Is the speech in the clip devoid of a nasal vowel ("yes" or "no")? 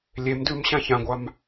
no